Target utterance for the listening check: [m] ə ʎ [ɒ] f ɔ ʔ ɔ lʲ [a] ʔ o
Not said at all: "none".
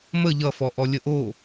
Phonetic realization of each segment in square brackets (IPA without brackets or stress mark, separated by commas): m, ʌ, ə